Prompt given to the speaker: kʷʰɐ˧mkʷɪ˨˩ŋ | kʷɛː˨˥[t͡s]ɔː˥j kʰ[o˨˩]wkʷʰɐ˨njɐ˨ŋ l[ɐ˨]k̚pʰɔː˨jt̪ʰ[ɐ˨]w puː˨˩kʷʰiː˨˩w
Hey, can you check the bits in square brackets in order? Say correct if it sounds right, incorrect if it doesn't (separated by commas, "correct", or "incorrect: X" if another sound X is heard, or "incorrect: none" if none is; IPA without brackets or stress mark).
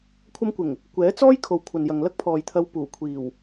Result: correct, incorrect: o˨, incorrect: ɐ˥, incorrect: ɐ˧